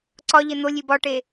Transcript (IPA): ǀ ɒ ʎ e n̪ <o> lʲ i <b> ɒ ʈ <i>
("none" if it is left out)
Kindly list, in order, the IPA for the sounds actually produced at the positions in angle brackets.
o, b, e

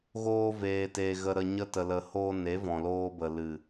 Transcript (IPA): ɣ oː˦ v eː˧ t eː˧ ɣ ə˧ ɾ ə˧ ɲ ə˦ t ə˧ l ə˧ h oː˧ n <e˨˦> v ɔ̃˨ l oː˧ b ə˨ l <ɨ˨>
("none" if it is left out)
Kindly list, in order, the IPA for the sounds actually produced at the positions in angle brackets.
e˨˦, ɨ˨

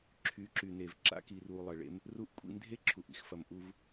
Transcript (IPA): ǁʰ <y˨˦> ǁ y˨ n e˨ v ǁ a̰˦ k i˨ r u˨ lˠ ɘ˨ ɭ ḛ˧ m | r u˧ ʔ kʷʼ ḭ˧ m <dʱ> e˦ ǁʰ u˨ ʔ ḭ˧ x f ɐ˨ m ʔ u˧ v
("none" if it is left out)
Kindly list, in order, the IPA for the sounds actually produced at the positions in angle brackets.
y˨˦, dʱ

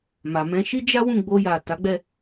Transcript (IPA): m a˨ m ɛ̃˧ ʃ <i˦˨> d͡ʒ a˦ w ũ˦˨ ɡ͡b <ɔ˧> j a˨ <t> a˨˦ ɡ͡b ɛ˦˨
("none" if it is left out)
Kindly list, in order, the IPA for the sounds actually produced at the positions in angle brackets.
i˦, o˧, t

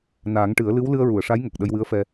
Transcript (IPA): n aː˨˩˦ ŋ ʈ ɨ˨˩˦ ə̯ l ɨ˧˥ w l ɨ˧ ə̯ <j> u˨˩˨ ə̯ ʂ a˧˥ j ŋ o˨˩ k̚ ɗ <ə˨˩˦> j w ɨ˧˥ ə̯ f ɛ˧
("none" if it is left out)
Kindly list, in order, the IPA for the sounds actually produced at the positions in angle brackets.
ɹ, ə˧

